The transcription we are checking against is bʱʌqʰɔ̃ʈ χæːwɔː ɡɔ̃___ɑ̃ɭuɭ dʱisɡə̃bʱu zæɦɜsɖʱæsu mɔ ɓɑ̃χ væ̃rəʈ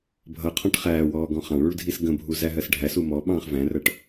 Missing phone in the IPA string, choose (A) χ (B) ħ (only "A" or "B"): A